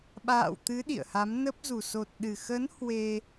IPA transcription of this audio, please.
ɓ a̰ː˧˨ w t̪ ɨ˨˦ ɗ ḭ˧˨ ə̯ h a˨˦ m n ə˦˥ p̚ z u˨˩ s o˨˩ t̚ ɗ ɨ˨˩ x ə˨˦ n h w e˧

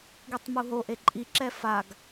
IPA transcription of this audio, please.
ɡ i tˤ m u ɦ o ʔ e ǃʼ i ǁ ɛ f a ɡ

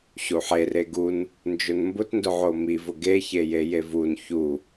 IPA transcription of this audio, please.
ɕ u ħ e r e ɡ u n | n d͡ʒ ʊ n m b ʊ t n d ʊ ʕ o m i v ʊ ɡ e ç e j e j e v u n ç u

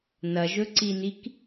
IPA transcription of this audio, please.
n ɐ ʒ ɵ ǀ i n i k

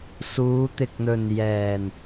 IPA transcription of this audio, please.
s uː˨˧ t̪ ɪ˨ k̚ n̪ ɵ˨ n j ɛː˨˩ n

